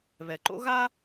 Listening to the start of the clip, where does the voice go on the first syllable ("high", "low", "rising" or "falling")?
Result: low